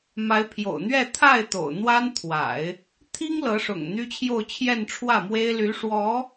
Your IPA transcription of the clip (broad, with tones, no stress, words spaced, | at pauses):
ma˧˥ɪ̯pʰjo̰˨˩ʊ̯n̪ɥɛ˥˧ t̪ʰa˥˩ɪ̯ t̪o̰˨˩ʊ̯n̪wa˥n t̪ʰwa̰˨˩˦ɪ̯ | t̪ʰi˥ŋ lɤ˧˥ ʂʊ̰˨˩ŋ n̪y˥t͡ɕʰjo˥˧ʊ̯ t͡ɕʰjɛ˥˧nʈ͡ʂʰwä˥˩mwe˥ɪ̯ ly˧˥ʂwɔ˧˥